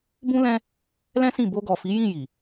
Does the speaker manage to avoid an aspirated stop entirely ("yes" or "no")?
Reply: yes